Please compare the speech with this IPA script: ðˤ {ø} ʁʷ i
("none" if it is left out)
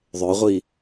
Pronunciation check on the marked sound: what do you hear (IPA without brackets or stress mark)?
ø